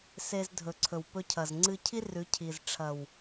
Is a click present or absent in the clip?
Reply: present